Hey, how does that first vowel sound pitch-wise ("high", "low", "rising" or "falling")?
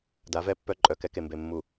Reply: rising